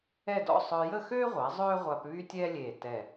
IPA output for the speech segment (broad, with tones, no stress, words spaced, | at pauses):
ɛ˥˧dɔ̰˥˧ sˤœ˧ jə˥˧xøː˥ʁʷa˩˧ zˤøː˥ʁʷa˧p βy˥tʲɛː˥lʲeː˧˩ tɛ˧˩